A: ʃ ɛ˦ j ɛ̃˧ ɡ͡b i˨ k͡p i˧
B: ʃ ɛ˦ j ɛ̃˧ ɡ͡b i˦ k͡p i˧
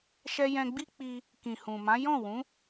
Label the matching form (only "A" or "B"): B